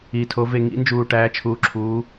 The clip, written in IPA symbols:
iː˨tʰo˨˦ ve˨ ŋḭ˨˦nd͡ʒuː˨ ʈæː˨˦t͡ʃʰuː˨˦ǁʰuː˨˦

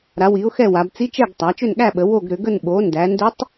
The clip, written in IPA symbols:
ɾa˩˧wi˩˧ʊ̯ xɛ˦˨wa˩˧b t͡si˧˥t͡ʃɛ˦˨ɡtˤa˩˧ t͡ʃʏ˦˨nɠæ˦˨ɓə˩˧ wo˦˨ɡɾʏ˩˧ɡə˦˨n ɓo˩˧ ndæ˩˧ndʏ˧˥tˤ

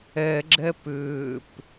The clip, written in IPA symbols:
ɛ ɡ͡ǁɛpʏːp

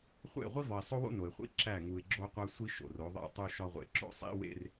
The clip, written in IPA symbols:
χʷḛ˦˨ ʁʷi˦vɒ˨ɪ̯sˤo˦wo̰˦ no˨ɪ̯χʷḭ˦ ǁæ˦˨ŋu˨ɪ̯ɡ͡ǁo˦ qʷæ˦sʷi˦ ʃo̰˨ro˨˦ ðˤḛ˦˨tˤu˦ ʃɒ˦ʁʷḛ˨ ǁo̰˦sˤḭ˦wḛ˦r

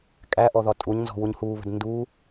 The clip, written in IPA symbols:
kʼæʔɔ ðɒtʼuɲnzɔ̤ wuɲhuːβə̤d ndu

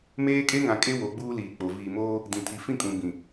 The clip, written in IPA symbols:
meː˦kʼe˦ŋã˨kʼe˦ wo˨˦ɡ͡buː˦liː˨k͡po˨ viː˨moː˦ | dĩ˨tʰi˨ fĩ˦˨kʼũ˨ bĩ˨

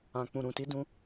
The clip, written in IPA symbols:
ã˨ k͡pũ˨ɾũ˨ti˧ dũ˧

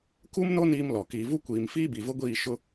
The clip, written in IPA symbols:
ku˦m no˦ niː˦mlɔ˨ kiː˨vu˦kʷiː˨m fiː˦bi˨vʊ˦ɡʷiː˦˨ ʃʊ˦

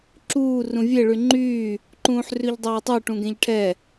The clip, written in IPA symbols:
ǁuː rũvʲe ɭyŋ͡ǃyː | ǃũːħrʉʎdˤeːtˤʉ ʈũɡẽʎʈʰɛ

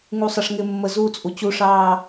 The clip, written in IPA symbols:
ŋusˤʌʂŋɪmːə zuːt͡sʼut͡ɕuʂɑː

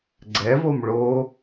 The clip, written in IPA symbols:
ɡ͡ǀɛvom ɭo

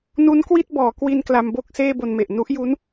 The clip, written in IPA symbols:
nu˦˥nkwi˥˩t̚bɔː˩˦kwi˧n kla˧mbo˥˩k̚ seː˥˩bo˧nme˨˩ʔ nu˦˥ʔju˦˥n

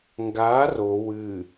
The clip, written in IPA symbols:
ŋɡaːr o wɨ

